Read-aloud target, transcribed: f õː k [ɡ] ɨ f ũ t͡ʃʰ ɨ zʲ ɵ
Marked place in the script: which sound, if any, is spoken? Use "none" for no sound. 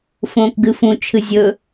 ɡ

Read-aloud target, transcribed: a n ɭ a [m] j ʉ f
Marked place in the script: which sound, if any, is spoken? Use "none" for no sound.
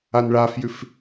f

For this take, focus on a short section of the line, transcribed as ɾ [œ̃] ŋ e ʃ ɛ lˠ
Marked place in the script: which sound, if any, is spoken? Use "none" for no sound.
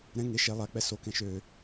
ɛ̃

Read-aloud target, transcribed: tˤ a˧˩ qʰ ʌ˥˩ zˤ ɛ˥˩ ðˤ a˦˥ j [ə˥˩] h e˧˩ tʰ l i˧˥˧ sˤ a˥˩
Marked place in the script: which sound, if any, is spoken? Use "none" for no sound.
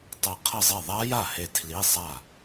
a˥˩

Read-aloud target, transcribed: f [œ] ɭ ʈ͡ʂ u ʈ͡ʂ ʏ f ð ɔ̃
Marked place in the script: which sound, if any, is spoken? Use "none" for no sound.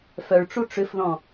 œ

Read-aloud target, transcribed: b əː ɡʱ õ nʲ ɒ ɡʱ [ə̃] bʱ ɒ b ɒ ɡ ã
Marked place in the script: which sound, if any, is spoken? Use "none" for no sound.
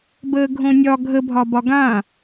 ə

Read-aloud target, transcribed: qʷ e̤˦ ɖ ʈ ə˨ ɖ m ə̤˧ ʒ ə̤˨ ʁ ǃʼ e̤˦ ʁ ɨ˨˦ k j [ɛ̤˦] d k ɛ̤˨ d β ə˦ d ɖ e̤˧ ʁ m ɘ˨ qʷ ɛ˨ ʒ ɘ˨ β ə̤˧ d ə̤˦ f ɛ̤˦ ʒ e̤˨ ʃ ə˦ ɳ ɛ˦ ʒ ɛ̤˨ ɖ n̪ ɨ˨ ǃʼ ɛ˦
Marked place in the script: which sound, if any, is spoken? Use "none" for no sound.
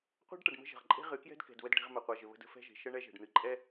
ɛ̤˦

